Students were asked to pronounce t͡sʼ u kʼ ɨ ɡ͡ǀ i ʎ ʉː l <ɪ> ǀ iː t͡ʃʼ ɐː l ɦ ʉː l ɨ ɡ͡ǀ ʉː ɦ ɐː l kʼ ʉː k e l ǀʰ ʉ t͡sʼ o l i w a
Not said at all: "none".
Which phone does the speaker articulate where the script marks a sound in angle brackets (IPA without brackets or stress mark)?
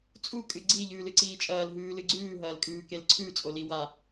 ɨ